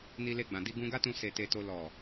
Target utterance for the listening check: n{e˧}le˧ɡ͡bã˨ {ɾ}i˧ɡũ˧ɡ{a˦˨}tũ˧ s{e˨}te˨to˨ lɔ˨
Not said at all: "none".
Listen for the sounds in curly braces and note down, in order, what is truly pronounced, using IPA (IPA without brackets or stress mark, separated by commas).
i˧, d, a˦, e˨